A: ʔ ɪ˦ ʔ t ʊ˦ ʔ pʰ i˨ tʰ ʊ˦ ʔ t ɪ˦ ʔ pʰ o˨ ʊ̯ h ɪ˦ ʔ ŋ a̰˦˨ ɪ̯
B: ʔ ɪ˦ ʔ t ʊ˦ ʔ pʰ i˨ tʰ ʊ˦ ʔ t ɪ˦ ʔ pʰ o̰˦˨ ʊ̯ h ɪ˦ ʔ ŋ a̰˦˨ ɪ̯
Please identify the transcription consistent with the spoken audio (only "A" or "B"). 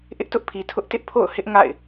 B